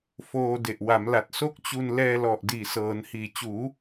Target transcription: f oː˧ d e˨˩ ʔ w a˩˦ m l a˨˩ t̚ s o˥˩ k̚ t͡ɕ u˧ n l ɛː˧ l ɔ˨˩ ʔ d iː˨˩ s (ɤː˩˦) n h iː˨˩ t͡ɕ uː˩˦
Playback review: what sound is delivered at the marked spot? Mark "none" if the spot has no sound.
ɤː˩˦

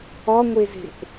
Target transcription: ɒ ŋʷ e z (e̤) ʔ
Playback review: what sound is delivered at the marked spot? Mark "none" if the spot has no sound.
e̤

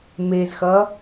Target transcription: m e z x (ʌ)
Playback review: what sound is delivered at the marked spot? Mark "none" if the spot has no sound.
ʌ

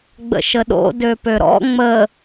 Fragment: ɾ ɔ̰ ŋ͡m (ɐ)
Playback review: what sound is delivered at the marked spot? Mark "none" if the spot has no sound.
ə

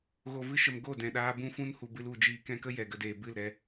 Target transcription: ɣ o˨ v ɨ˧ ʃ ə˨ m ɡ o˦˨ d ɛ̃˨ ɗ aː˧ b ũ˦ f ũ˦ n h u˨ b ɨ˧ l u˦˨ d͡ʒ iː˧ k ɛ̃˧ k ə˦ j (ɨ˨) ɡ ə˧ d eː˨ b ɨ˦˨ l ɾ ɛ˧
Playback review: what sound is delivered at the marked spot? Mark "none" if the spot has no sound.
ɛ˨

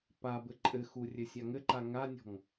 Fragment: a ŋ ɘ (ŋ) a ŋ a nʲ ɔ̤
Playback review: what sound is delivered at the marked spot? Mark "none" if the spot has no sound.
ǃ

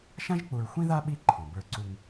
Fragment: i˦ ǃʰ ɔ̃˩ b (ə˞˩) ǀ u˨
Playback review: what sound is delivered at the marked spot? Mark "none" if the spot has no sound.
ə˞˨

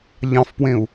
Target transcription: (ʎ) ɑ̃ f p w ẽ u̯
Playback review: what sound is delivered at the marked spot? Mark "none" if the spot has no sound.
ʎ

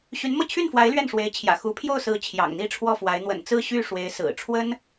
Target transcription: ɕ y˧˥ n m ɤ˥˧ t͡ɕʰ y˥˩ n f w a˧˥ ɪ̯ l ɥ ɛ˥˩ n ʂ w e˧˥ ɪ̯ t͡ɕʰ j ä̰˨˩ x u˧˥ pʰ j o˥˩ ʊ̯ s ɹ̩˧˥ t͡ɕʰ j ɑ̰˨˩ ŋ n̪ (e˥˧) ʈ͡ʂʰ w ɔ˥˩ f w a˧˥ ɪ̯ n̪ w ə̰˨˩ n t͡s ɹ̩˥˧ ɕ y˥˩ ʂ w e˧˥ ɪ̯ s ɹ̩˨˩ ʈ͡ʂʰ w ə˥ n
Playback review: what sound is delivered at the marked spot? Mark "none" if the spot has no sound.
i˥˧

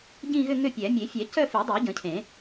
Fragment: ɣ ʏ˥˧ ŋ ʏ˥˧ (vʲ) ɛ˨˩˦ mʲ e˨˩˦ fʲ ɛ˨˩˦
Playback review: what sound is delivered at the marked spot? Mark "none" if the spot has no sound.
pʲ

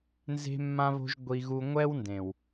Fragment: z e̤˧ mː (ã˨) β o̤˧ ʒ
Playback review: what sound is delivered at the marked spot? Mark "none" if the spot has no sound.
ã˧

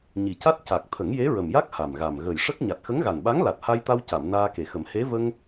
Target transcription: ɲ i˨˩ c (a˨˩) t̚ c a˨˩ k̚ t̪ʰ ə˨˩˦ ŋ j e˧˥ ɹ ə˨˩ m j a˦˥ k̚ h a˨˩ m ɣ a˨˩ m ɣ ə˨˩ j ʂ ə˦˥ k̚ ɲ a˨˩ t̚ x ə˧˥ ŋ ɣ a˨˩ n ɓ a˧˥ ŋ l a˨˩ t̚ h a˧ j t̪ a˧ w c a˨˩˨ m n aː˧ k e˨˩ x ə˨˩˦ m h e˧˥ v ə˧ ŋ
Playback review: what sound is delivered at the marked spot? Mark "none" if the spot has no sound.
a˦˥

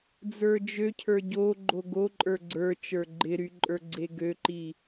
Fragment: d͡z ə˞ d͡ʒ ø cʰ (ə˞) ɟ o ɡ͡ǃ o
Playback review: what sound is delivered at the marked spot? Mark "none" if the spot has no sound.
ə˞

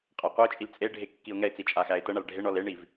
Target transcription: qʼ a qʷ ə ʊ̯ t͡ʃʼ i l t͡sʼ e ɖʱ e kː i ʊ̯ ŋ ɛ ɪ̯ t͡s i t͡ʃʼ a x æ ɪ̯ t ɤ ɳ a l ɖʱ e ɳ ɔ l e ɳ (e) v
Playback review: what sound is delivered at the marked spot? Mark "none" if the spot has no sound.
i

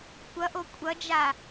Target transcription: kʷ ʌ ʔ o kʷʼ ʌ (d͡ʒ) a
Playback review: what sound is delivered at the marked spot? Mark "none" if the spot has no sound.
d͡ʒ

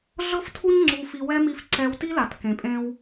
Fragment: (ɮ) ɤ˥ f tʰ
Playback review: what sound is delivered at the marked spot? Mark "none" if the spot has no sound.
ɮ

